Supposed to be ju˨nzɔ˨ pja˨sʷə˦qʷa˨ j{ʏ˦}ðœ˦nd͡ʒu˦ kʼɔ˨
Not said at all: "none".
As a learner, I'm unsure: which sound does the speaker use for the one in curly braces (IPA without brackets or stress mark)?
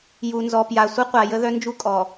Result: ə˦